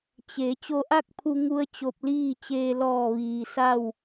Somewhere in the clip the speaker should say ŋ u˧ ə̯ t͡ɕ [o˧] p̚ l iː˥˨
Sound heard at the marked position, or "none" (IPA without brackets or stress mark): o˧